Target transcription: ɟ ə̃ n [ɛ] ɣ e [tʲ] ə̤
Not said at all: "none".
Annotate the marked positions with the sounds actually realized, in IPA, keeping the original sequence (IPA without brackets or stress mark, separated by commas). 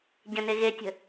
e, tʲ